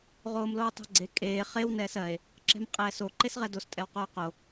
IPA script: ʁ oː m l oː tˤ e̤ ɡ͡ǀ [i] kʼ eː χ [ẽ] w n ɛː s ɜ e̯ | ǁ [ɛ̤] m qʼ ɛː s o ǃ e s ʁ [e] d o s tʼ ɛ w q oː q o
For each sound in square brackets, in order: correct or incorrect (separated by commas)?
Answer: incorrect, incorrect, correct, incorrect